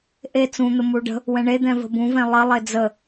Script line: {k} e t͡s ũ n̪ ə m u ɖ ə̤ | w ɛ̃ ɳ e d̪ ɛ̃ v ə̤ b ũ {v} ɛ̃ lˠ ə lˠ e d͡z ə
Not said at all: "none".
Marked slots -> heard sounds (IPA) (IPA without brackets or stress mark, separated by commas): ʔ, v